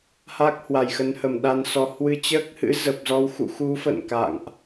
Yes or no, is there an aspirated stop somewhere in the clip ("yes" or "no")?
no